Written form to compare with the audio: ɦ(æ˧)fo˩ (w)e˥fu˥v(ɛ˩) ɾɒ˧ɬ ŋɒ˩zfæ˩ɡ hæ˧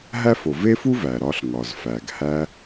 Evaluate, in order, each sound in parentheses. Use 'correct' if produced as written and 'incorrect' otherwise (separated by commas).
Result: incorrect, incorrect, incorrect